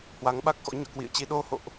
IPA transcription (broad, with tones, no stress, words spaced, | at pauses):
hwa˨˦ŋɓa˦˥k̚xɔ̰˧˥ ɲɔ̰˧˨kwḭ˧˨ə̯t͡ɕi˧ ɗo˧ho̰˧˨ʔ